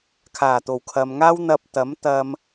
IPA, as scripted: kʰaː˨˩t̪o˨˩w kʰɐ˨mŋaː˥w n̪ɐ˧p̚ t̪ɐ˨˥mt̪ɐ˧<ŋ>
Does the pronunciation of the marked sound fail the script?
yes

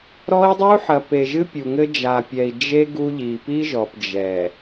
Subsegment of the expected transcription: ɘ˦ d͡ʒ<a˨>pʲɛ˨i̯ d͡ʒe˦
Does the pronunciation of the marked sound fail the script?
no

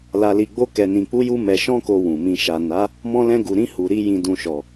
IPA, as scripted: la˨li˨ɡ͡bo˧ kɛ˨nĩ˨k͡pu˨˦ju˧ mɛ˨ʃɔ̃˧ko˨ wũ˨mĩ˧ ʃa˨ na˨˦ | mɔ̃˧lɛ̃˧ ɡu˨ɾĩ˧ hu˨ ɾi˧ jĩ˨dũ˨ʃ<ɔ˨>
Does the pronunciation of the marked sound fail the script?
no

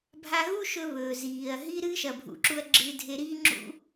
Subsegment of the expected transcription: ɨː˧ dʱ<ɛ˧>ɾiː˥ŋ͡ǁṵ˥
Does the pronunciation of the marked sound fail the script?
yes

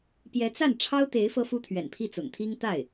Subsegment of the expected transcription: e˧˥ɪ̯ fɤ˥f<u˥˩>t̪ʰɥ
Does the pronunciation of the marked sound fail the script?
yes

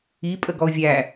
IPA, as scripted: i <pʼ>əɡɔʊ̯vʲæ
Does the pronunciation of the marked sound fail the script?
no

